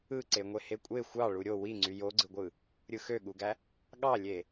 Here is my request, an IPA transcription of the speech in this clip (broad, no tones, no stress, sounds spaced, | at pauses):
ɯ ǀ e ŋʷ e h e kʷʼ e xʷ ɑ ɭ u ɾʲ o w i ŋ͡ǀ y j o ɡ͡ǀ ɯ ɡʷ ɯ | ɾʲ ɯ x ø ɠ u ɡ æ | ɠ ɑ lʲ e